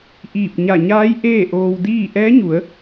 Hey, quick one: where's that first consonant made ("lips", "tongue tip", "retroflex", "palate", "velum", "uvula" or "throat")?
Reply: throat